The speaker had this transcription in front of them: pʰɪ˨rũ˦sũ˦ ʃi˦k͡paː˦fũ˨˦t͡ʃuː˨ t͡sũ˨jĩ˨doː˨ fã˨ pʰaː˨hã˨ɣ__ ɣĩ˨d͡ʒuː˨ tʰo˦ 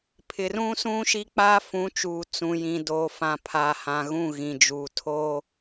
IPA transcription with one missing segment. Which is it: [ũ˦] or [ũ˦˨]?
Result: ũ˦˨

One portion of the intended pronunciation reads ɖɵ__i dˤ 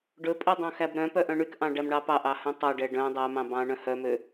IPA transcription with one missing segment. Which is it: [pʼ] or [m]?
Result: pʼ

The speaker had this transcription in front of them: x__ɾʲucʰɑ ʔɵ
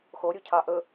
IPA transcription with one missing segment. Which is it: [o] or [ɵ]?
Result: o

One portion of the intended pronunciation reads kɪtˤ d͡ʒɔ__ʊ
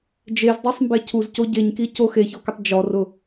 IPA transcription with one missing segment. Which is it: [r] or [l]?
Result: r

